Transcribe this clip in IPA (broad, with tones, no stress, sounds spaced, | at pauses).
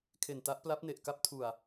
kʰ e˨˩ n t a˦˥ ʔ p l a˦˥ p̚ n e˨˩ ʔ k a˦˥ p̚ tʰ u˨˩ a̯